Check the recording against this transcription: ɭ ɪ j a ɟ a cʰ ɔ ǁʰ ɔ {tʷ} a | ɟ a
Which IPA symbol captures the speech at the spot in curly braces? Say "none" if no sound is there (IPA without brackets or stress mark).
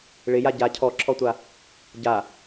tʷ